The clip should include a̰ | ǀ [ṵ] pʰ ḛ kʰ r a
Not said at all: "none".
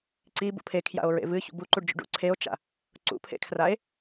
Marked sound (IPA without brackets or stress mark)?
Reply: ṵ